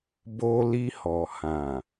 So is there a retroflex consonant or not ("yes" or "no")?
no